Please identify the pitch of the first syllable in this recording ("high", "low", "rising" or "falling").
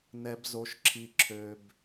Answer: low